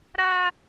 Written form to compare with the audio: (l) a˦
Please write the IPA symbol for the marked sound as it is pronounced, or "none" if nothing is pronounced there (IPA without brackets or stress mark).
ɾ